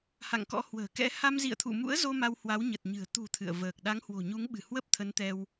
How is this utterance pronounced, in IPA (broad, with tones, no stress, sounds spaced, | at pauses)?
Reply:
h a̰˧˨ ŋ k ɔ̰˧˥ h w ə̤ː˨˩ k ɛ̰˧˥ h a˧ m z ḭ˧˨ ə̯ t̪ʰ ṵ˧˨ m ṵ˧˥ ə̯ z o˧ m a˧ w h w a˨˦ w ɲ ə˨˩ t̚ ɲ ɨ̤˨˩ ə̯ t̪ ṳ˨˩ t̪ʰ ɨ̰˧˨ ə̯ v əː˨˩ k̚ ɗ a˨˦ ŋ h w o̤˨˩ ɲ u˨˦ ŋ ɓ ɨ̤˨˩ h w ə˦˥ p̚ t̪ʰ ə˨˦ n t̪ ɛ˧ w